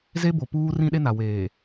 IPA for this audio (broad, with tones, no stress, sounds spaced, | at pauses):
z e˦ b o˨ p uː˦ r ĩ˦ ɗ e˦ n a˨ w eː˨